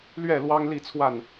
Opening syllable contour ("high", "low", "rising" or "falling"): falling